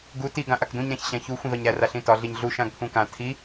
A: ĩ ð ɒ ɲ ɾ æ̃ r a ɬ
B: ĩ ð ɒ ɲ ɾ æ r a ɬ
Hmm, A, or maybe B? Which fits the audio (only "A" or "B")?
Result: B